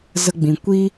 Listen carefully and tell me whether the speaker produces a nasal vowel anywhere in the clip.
yes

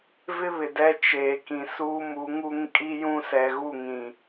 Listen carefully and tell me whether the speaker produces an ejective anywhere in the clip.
yes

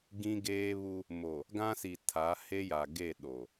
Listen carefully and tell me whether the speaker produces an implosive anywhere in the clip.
yes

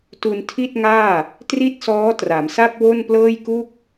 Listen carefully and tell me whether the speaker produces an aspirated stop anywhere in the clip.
yes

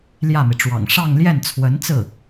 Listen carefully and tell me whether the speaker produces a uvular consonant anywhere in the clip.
no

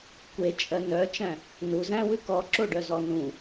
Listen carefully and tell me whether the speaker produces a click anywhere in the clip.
yes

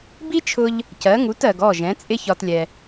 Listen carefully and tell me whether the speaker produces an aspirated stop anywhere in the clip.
yes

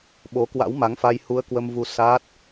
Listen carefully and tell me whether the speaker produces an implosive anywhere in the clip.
yes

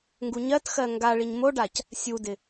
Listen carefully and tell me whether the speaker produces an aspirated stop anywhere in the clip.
no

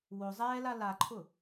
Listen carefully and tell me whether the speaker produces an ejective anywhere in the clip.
no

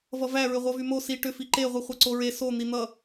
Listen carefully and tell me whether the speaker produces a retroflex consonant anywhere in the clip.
yes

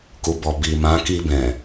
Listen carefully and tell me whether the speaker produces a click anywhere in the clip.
no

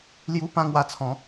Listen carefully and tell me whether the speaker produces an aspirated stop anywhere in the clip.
yes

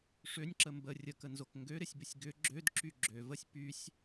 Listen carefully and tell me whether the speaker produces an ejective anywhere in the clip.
no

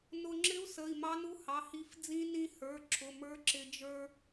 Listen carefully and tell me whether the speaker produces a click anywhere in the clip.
yes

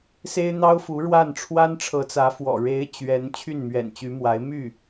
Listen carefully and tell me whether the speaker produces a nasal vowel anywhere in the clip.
no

